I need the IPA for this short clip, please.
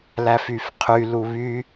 l æ f y f qʰ y l u β y

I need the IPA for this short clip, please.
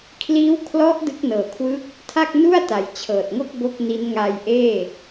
kʰ l iː˦˥ w kʰ l ɔ˦˥ ʔ d ɯ˦˥ k̚ n ɤː˨˩ kʰ w ɯ˦˥ k̚ | tʰ a˥˩ k̚ n u˥˩ a̯ t a˩˦ j t͡ɕʰ ɤː˨˩ t̚ ŋ o˥˩ k̚ b o˥˩ k̚ n i˦˥ n ŋ a˧ j ʔ eː˥˩

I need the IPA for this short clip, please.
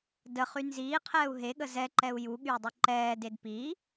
d ə χ y n z iː qʰ ɛː u̯ ɦ e ɠ ə z ɛ ǃ ɛ u̯ j u ɠ y u̯ dˤ y ǃ ɛː d e d p i

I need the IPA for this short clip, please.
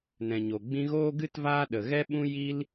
n ɛ̃˨ ɲ o˨ ɡ͡b ĩ˧ ɣ oː˦ ɡ ɨ˦ t v aː˦ ɗ ə˨ ɣ ɛ˦ ɓ ũ˦ j i˦ l

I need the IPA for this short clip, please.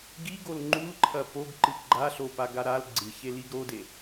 ɡ i ɡ o l ŋ͡ǃ u l ǃʰ ɐ p o ɡ ǃ ɨ ɡ͡ǃ a ɬ o p a ɡ a ɾ a l ɡ͡ǀ ɨ ç e l i ɡ ɾ o d e

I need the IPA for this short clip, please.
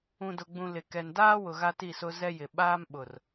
ũ˨ d ʊ˨ ɡ͡b ũ˨ l ɪ˨ k ɛ˨ n d aː˦ w ʊ˨ ɣ a˦ t i˦˨ s ʊ˦ z ɛ˦ j ɪ˨ ɓ aː˦ m ɓ ʊ˨ r

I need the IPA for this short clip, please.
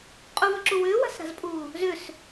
qʼ u v ʏ ǁ u w ʏː w a̤ s ɾ a̤ z pʼ uː | z ʏ s

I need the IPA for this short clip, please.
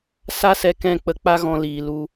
s a˦ s ɛ˧ k ɛ̃˦˨ k͡p ə˧ k͡p a˦ ɣ ɔ̃˧ l iː˨ l u˧

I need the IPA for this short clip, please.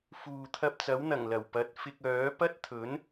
f uː˨ t̪ʰ ɐ˧ p̚ t͡s ɐ˨˥ w n̪ ɐ˨˩ ŋ l ɐ˨˩ w p ɐ˨˥ t̚ f ɪ˧ k̚ œː˨˥ p ɐ˥ t̚ t̪ʰ ɵ˨˥ n

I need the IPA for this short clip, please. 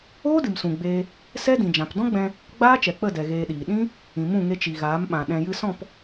oː˦ d ɨ˨ m s ũ˨ ɡ͡b eː˧ | s ɛ˦ d ĩ˨ d͡ʒ ã˨ p d ɔ̃˦ ɡ͡b ɛ̃˧ | ɡ͡b aː˦ t͡ʃ ɛ˨ k͡p ə˦˨ d ɛ˧ ɣ eː˧ ɗ iː˨ ɗ ĩ˦ | ĩ˨ m ũ˦˨ ŋ e˧ t͡ʃ i˨ ɣ aː˨˦ m ɓ ã˨ ɗ ɛ̃˨ j ɨ˧ s ɔ̃˦˨ p

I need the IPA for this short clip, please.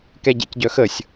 k ɛ ɟ ɛ̰ c ɟ œ x ə sʲ

